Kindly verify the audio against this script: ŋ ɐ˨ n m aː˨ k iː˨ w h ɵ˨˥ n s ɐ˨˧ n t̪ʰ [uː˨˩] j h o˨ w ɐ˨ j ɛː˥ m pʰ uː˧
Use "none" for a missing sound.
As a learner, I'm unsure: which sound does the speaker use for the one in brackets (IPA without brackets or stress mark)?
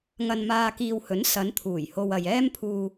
uː˨˩